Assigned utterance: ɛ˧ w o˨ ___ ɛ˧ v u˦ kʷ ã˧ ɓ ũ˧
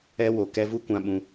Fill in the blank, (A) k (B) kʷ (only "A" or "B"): A